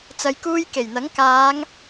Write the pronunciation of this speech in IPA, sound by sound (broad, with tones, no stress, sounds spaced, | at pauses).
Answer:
t͡s ɐ˨ j k uː˧ j k e˨˩ j n̪ ɐ˨˥ ŋ k aː˨˧ ŋ